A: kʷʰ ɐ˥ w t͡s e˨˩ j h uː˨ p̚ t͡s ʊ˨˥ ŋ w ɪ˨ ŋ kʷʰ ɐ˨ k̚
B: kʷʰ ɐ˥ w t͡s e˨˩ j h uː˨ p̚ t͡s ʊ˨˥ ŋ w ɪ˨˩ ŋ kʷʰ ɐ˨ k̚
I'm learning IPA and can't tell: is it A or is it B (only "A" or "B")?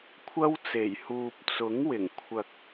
B